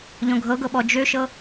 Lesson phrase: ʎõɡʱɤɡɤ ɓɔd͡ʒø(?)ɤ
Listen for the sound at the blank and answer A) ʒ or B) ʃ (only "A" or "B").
B